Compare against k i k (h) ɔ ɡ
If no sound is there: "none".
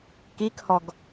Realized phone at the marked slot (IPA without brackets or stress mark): h